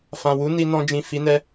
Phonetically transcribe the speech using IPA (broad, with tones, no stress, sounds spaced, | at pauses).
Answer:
f ã˨ w u˨˦ n i˧ n ɔ̃˧ d͡ʒ ĩ˨ f i˨˦ n ɛ˧